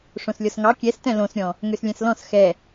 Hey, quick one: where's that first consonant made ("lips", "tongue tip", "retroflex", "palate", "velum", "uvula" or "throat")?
retroflex